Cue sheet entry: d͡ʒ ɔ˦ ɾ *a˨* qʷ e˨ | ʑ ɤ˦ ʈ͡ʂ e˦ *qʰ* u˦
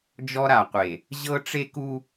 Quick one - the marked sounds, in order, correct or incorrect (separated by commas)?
correct, incorrect